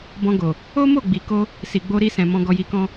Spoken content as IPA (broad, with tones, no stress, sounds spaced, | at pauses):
b ɔ̃˧ ɡ o˨ | o˦ m o˦˨ ɡ͡b i˨ k o˧ | s i˨ ɡ͡b o˧ ɾ i˧ s ɛ̃˨ m ɔ̃˧ ɡ ɔ˧ j i˧ k ɔ̃˦